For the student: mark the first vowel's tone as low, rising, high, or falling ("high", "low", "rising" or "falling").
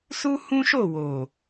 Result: high